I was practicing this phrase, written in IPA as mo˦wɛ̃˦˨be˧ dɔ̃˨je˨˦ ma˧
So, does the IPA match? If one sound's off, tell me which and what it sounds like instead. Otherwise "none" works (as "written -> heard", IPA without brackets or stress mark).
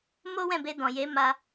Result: none